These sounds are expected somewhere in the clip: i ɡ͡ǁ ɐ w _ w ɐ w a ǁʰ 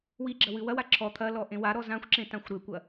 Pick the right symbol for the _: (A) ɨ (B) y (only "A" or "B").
A